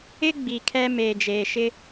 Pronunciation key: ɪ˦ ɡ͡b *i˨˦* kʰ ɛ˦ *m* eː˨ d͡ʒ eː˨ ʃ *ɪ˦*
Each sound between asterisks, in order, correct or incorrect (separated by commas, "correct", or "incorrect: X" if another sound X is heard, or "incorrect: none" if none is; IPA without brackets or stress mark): incorrect: i˨, correct, correct